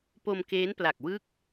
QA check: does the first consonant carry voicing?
no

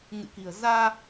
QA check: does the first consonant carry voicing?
yes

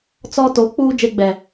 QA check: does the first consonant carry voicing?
no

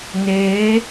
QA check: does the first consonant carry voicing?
yes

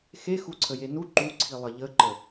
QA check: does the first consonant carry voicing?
no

